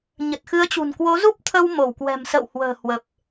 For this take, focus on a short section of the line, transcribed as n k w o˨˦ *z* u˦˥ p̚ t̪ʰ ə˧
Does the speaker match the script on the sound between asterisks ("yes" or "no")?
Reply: yes